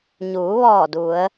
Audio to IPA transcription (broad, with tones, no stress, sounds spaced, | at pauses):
ɲ uː˩˧ ʋ ɔː˧˩ d u˩˧ ə̯